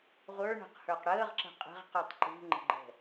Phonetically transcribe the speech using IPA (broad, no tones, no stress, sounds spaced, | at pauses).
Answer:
ʁʷ ə˞ ɳ ə̤ q h ə˞ q ɽ əː ʁ ǁ ə̤ qʼ ə̤ ʁ q u tˤ ǃ ṳ ŋ͡ǃ ə̤ ɡ͡ǃ ɛ̤